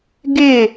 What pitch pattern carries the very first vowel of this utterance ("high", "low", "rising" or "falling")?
falling